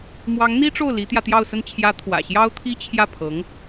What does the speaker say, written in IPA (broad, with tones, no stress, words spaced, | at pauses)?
mwɑ˧˥ŋn̪i˥ʈ͡ʂo˥˩ʊ̯ li˧˥t̪jä˧ t̪jɑ˥˧ʊ̯sə˥˩n t͡ɕʰjä˧˥ t̪ʰwä̰˨˩ɕjɑ˥ʊ̯t̪ʰi˥ t͡ɕʰjä˥˩pʰɤ˧˥ŋ